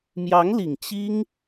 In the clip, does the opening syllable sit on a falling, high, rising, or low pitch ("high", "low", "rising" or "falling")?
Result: rising